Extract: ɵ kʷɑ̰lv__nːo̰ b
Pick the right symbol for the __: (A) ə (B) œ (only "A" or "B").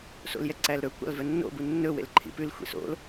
B